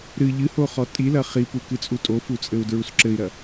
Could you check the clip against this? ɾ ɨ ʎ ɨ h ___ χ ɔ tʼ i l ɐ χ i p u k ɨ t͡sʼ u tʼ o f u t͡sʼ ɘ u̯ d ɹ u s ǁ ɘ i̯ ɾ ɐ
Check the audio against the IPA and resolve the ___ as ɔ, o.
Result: o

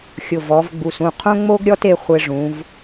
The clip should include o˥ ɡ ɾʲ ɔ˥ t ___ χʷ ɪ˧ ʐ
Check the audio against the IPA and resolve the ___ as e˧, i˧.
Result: e˧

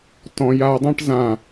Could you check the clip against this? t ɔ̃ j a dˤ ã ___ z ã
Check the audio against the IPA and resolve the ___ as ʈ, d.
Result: ʈ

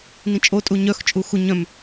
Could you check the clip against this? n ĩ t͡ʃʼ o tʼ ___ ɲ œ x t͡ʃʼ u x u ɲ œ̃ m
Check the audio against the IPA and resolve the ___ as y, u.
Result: u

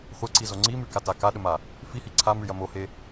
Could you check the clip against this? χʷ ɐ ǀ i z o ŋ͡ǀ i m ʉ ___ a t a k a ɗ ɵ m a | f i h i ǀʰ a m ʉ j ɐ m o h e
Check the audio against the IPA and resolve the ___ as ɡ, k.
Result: k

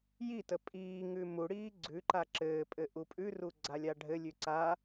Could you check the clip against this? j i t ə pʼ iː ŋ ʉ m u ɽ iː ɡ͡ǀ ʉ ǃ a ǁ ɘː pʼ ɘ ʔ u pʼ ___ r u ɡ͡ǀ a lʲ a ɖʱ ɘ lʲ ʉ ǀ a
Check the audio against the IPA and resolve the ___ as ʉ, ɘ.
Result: ʉ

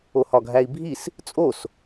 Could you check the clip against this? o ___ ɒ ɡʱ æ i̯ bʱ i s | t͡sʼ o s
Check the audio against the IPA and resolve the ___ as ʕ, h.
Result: h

